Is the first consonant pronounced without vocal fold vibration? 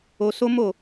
yes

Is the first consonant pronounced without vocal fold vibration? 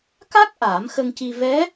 yes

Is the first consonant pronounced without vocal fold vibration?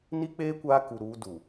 no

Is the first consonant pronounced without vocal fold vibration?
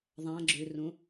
no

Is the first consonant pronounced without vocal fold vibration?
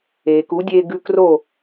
yes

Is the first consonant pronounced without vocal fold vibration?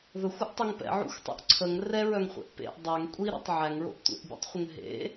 no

